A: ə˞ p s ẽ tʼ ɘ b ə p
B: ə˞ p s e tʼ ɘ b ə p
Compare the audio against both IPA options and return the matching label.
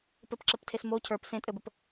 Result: A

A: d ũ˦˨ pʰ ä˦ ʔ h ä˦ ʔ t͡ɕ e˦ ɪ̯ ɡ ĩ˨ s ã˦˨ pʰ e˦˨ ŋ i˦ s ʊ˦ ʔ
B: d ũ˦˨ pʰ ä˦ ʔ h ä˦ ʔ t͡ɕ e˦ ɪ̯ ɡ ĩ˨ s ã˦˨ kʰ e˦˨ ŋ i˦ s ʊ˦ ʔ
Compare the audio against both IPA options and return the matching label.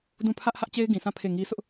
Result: A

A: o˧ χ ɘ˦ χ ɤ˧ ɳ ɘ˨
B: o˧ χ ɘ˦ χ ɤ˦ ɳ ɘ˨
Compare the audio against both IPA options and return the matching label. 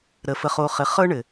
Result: B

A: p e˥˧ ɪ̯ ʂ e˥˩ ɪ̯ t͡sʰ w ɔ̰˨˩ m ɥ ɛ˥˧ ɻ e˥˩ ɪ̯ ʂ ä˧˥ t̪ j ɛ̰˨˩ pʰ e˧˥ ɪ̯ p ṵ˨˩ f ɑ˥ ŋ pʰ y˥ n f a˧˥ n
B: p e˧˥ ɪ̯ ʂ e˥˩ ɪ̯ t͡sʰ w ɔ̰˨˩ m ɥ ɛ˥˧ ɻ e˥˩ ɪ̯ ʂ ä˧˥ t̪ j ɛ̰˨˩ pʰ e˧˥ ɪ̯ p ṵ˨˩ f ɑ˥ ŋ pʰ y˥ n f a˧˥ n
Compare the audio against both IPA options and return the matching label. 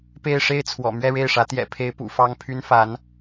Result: A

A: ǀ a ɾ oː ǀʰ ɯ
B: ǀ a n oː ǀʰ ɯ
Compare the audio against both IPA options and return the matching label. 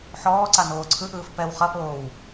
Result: B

